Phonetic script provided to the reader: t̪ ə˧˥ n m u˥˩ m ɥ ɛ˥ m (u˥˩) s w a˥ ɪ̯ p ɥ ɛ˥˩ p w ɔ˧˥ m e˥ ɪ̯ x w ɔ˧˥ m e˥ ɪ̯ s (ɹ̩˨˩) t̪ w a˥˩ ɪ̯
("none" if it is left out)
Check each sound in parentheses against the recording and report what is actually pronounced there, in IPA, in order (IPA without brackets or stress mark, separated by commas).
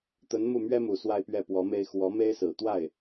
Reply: u˨˩, ɹ̩˨˩